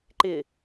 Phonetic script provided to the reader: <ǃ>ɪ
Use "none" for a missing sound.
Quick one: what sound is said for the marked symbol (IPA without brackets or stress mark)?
ǃ